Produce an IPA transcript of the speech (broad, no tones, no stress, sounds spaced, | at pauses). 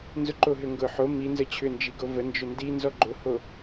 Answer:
n z ʊ ǃ o ɦ ʏ ŋ ɡ ʊ ħ o m i n z ə t͡ɕʰ ʏ n d͡ʒ i ɡ o v ə n d͡ʒ ʏ n d i n z ɔ ɡ͡ǃ ʊ h o